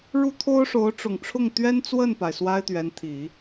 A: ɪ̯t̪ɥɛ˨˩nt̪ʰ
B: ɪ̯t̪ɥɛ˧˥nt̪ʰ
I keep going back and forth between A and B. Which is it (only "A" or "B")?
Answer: B